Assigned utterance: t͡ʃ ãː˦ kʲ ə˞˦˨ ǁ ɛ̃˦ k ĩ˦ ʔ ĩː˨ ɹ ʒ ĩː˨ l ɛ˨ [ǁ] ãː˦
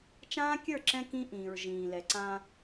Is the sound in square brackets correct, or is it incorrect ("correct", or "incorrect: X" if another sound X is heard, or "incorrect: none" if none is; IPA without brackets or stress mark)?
incorrect: ǀ